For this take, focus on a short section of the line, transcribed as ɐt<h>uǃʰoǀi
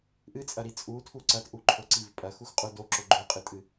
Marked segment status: incorrect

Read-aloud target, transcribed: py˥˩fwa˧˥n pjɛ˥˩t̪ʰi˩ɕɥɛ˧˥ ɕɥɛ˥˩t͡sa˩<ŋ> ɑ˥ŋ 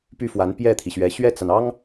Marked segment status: incorrect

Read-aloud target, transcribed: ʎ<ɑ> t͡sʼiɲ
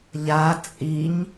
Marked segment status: incorrect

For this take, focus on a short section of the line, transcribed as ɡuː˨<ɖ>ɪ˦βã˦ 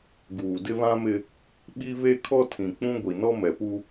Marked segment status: incorrect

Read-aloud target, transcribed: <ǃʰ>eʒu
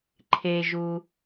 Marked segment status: correct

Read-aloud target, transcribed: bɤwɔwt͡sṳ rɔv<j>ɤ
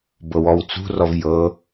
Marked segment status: correct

